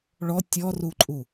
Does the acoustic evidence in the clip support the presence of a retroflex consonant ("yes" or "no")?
yes